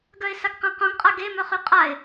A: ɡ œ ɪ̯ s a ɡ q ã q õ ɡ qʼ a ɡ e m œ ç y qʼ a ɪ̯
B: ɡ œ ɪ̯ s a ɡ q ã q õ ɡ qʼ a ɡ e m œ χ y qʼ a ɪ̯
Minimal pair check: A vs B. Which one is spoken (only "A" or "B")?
B